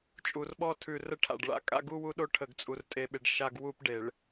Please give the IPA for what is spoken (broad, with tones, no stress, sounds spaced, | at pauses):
t͡ʃʼ u˨ r ɓ ɔ˦ tʰ ʉ˨ r ə˦ ʈʰ a̰˨ ɖ ɭ a̰˦ kʼ a̰˦ ɡ u˦ w u˦ ɗ o˦ ʈʰ ə˨ ɡ t͡sʼ u˨ r tʼ e˨ ɓ e˨ ɖ ʃ a˦ ɡ w u˦ p ɖ e˨ ɭ